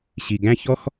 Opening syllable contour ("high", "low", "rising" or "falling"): low